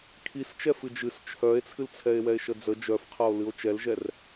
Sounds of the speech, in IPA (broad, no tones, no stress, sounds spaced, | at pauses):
kʰ i s t͡ʃ ɛ f ɨ d͡ʒ ɨ s t͡ʃʰ œ e̯ t͡sʰ ɨ l t͡sʰ ɛ e̯ w ɛ e̯ ʃ ə d͡z ə d͡ʒ œ f qʰ ɐ o̯ l ɨ o̯ t͡ʃ ɛ l ʒ ɛ r